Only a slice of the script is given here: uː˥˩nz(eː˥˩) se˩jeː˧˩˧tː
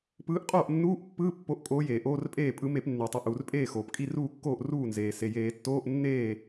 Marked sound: incorrect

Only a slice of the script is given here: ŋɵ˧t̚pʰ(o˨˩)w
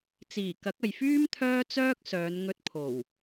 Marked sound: correct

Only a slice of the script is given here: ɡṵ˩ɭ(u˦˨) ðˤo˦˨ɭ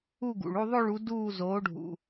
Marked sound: correct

